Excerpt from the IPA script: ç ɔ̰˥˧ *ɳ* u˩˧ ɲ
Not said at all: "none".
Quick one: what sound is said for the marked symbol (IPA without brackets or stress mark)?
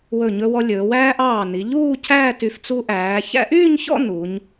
n